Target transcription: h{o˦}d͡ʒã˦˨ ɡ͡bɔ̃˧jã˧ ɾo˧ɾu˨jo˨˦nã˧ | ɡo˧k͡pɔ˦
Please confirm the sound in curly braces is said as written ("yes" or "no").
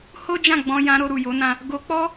yes